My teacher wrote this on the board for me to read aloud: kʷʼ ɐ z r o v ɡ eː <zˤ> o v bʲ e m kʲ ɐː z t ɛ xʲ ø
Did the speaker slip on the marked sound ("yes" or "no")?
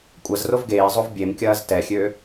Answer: no